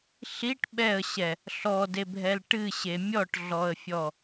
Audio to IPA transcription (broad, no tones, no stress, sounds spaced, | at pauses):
ɬ i ʈ ɓ ɛ ə̯ ɕ ɛ | ɬ ɔ d e bʱ ɛ l ʈ ɨ ɕ e mʲ ɔ ʈ ɮ ɔ ə̯ fʲ ɔ